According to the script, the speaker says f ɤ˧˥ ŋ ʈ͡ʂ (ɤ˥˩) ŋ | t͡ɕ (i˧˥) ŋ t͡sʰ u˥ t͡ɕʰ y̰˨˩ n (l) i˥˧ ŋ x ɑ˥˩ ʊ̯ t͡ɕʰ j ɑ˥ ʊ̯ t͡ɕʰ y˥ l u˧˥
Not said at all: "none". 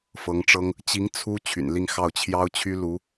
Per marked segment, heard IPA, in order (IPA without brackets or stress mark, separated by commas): ɤ˥, i˧˥, l